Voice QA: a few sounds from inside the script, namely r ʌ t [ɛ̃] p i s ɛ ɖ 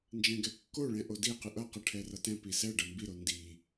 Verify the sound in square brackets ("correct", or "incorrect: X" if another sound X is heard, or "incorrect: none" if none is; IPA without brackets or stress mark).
correct